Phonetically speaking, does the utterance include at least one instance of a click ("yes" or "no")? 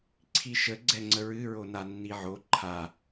yes